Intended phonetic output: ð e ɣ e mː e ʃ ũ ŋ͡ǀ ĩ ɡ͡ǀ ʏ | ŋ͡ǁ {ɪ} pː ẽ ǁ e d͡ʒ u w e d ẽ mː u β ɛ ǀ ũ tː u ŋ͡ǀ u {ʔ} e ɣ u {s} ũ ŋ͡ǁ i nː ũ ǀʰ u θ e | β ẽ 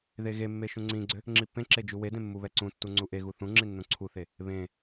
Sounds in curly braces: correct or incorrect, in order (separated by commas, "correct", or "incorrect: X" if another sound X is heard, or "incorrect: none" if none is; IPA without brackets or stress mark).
incorrect: i, correct, incorrect: θ